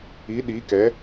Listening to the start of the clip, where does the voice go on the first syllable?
rising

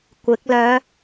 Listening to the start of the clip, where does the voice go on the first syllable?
rising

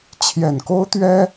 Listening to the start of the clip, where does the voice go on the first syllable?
low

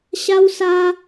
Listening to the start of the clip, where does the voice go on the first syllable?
high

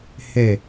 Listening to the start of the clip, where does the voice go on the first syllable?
falling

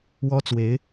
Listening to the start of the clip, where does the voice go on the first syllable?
high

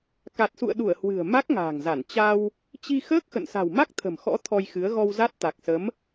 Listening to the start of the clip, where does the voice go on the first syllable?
low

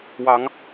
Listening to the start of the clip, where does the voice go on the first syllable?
rising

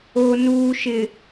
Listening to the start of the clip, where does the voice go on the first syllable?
low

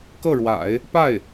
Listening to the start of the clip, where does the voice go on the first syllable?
falling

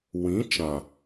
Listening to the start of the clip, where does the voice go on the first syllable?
rising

